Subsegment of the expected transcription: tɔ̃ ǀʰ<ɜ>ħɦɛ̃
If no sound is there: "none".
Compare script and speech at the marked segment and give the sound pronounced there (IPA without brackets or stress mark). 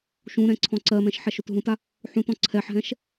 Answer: ɛ